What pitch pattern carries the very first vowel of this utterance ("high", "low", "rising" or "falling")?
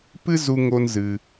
high